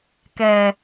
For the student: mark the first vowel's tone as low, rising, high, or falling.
low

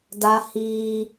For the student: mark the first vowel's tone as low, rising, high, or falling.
high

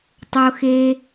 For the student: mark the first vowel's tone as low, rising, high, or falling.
low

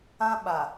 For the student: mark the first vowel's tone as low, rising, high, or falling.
high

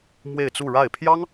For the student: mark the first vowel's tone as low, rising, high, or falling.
falling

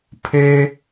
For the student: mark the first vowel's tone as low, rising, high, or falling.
high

